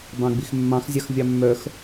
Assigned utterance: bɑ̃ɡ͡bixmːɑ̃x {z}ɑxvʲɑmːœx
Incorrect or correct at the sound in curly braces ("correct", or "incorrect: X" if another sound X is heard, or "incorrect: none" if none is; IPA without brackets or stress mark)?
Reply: incorrect: zʲ